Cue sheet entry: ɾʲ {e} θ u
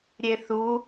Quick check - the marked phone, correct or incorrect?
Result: correct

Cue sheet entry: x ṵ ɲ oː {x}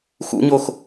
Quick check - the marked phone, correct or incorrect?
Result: correct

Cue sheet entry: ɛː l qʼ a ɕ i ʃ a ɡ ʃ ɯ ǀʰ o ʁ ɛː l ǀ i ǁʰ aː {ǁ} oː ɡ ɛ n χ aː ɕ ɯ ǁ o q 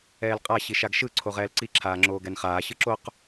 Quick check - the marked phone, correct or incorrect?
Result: incorrect: ŋ͡ǁ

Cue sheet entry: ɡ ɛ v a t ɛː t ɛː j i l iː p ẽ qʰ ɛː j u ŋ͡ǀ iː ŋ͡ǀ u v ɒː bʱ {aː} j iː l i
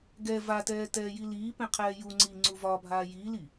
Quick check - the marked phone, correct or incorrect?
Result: correct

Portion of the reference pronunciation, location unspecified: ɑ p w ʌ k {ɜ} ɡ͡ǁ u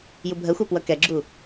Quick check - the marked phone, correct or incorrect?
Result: incorrect: ɛ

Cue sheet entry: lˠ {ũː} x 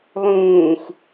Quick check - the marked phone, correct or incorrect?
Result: correct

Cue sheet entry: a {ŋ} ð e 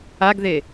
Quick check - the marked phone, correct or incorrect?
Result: incorrect: ɡ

